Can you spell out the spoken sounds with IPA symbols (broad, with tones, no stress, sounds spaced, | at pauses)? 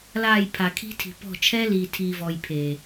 l aː˦˨ j pʰ a˨ kʰ i̤˦ tʰ i̤˨ p ɔ̤˦˨ t͡ʃʰ ɛː˦ l iː˨ tʰ iː˨ v ɔ˨ j pʰ e˨